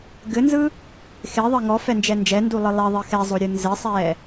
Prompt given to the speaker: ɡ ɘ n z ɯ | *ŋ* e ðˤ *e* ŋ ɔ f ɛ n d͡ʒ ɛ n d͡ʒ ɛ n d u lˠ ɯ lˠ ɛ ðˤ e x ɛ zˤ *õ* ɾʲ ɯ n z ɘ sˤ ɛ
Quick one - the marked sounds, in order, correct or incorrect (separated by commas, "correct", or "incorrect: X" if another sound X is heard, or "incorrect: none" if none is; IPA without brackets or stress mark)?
incorrect: x, incorrect: ɘ, incorrect: o